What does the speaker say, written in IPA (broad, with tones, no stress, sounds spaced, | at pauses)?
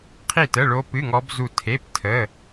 qʰ i˦˨ t ə˧˥˧ ɭ o˦˥ p ɨ˧˥˧ ŋ ɔ˦˥ b z u˦˨ tʰ e˧˥˧ p tʰ ə˧˥˧